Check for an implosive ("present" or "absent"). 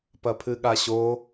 present